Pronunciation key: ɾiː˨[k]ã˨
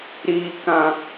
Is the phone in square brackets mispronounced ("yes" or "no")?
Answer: no